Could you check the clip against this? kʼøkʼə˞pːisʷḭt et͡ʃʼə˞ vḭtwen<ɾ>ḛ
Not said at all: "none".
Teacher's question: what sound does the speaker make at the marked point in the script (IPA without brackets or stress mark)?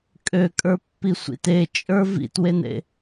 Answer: ɾ